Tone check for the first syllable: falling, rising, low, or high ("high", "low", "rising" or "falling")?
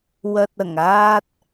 low